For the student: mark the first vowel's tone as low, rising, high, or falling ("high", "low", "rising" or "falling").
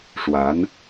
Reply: rising